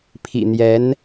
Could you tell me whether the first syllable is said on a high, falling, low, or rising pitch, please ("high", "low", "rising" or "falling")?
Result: low